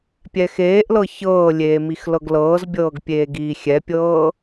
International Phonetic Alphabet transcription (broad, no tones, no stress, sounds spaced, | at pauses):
pʲ ɛ x eː ʔ l ɤ ç ɤː lʲ eː m i x l ɤ ɡ l ɤː z bʲ ɤː ɡ pʲ eː ɡ iː xʲ ɛ pʲ ɤː